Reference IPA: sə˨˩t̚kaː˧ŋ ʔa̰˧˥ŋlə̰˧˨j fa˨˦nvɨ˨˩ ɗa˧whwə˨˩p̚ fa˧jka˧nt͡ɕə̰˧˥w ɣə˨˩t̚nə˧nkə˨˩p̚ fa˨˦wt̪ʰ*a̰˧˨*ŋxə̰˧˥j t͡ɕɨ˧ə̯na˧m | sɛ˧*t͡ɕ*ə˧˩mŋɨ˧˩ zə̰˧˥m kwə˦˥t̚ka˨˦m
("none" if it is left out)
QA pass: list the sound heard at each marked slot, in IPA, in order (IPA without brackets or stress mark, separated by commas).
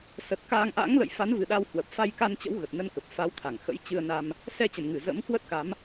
a˧˩, t͡ɕ